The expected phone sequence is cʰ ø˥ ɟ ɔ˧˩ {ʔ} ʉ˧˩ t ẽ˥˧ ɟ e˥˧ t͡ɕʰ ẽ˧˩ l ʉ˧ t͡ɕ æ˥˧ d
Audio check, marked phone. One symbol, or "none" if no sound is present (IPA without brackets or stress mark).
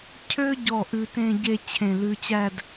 ʔ